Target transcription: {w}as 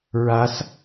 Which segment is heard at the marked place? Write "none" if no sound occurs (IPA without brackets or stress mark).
ɹ